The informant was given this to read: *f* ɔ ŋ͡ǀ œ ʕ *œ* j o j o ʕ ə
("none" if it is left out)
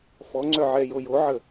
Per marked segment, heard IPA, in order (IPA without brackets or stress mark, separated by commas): f, ɛ